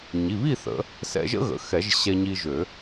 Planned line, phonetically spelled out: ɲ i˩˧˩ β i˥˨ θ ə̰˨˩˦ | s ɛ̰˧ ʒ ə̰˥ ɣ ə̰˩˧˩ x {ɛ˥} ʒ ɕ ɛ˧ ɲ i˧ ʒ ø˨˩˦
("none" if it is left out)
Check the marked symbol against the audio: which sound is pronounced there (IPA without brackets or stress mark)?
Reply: ɛ˨˩˦